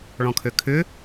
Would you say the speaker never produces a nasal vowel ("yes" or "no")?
no